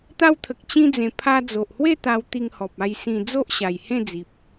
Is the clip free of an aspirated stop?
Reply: no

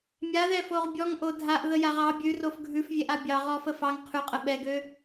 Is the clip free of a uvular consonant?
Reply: no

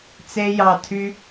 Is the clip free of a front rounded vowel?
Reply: no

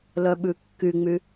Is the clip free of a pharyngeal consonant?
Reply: yes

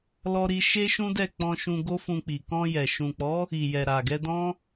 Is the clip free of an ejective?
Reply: yes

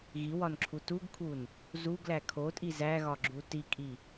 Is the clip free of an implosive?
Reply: yes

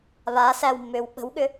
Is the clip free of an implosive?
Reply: no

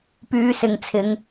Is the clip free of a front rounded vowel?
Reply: no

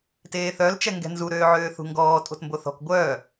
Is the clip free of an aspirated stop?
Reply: yes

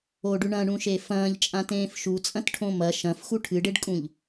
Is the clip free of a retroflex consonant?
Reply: no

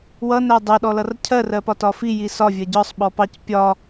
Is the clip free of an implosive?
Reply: no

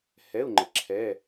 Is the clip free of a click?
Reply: no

